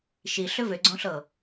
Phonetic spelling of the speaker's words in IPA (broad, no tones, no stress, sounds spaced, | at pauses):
ʃ i ɬ ʏ v ʏ ɡ͡ǀ õ ɬ ɤ